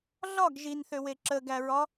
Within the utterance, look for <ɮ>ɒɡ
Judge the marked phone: correct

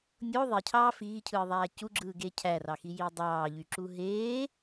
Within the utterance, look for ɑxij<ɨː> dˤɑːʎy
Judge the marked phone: incorrect: iː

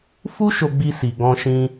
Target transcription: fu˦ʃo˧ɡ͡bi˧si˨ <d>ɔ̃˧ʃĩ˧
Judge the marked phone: incorrect: ɡ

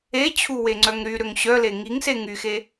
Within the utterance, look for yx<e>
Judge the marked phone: correct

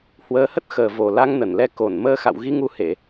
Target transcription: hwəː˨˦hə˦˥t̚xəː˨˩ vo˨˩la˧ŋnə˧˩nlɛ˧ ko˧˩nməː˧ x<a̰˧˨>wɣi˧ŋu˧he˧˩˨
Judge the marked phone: correct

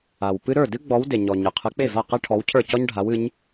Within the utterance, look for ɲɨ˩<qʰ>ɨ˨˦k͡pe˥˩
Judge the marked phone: correct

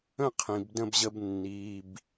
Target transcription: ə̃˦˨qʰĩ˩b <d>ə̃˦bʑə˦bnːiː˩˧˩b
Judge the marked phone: correct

